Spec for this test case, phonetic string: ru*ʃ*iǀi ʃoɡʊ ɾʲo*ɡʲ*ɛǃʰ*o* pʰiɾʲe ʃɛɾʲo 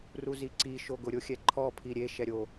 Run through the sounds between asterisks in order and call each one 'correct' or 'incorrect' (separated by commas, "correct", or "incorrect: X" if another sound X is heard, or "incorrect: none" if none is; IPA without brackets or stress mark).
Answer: incorrect: z, incorrect: xʲ, incorrect: ɔ